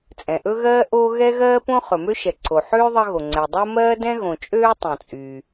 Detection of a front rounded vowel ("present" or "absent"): present